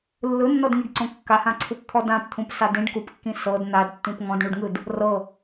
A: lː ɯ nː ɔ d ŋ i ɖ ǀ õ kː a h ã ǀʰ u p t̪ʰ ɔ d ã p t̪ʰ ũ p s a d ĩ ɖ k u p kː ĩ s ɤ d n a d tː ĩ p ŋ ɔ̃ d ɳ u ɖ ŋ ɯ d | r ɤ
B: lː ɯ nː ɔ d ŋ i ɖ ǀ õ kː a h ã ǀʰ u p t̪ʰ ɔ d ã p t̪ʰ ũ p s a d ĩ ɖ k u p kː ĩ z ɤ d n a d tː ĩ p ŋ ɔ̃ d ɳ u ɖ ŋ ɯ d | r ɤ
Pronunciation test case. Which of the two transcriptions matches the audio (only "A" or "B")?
A